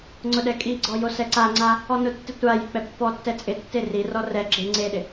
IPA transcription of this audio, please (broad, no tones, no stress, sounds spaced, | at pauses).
ŋ͡ǀ ʊ ɗ ɛ kʼ i ɡ͡ǀ ɔ j o s ɛ ǀ a ŋ͡ǀ a | ɔ n ʊ tː ɪ tʷ a j ɪ k͡p ɛ pː ɔ tː ɛ t͡sʼ ɪ tː e r i r ɔ r ɛ ɡ͡ǁ e ŋ͡ǀ e ɗ ɪ